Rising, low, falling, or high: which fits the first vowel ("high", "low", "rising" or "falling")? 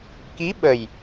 rising